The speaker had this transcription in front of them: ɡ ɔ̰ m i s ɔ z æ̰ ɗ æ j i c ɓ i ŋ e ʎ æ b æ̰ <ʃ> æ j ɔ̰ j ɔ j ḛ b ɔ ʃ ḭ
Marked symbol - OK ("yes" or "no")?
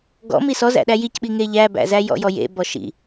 no